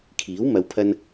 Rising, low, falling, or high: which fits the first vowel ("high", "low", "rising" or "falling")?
rising